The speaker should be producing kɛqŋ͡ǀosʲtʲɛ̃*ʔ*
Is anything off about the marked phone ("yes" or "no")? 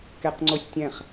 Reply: yes